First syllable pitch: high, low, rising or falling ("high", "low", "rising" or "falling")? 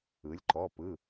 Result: rising